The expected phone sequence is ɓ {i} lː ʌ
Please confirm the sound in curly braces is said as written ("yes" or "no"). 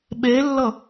no